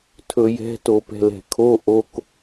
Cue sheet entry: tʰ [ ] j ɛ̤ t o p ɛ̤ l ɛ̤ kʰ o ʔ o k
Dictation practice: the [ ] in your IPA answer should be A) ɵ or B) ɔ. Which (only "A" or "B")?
A